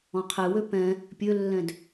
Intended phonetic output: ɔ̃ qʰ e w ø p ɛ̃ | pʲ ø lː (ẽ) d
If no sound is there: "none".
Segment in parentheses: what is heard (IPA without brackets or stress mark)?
ɛ̃